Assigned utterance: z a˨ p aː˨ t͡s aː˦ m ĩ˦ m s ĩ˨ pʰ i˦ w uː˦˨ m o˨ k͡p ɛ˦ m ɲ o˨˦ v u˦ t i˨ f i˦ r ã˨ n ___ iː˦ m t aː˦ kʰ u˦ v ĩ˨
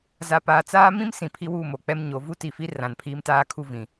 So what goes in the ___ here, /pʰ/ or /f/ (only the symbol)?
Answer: pʰ